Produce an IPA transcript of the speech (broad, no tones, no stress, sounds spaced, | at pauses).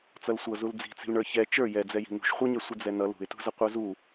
t͡s ʌ l sʷ ʌ z u l d͡z i̤ t͡s i̤ l ɳ ə˞ ç ɛ t͡ʃ ə˞ j ɛ d͡z ɛ j i̤ n ṳ ʃ χʷ ʌ ɲ ɛ sʷ ɪ d͡z ɛ n ʌ l ṳ ɪ̯ t ṳ z ʌ qʷ ə˞ z u